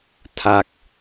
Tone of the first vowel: falling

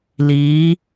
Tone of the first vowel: rising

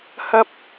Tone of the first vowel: high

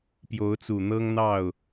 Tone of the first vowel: rising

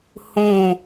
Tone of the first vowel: falling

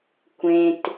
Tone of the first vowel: low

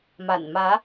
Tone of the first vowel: low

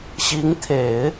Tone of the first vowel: rising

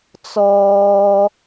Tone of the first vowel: high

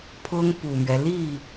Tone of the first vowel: high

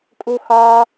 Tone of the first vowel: high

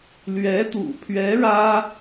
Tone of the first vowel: rising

